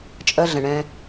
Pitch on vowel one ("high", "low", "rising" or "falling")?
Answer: high